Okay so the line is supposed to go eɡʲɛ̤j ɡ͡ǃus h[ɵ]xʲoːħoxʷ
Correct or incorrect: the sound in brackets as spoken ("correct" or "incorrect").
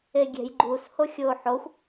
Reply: incorrect